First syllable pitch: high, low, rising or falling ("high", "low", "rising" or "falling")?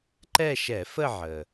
falling